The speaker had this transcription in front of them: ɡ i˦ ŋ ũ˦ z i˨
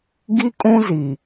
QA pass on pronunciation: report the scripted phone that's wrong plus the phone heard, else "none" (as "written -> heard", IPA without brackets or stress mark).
ŋ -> kʼ